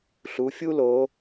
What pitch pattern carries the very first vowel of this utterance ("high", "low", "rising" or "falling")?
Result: rising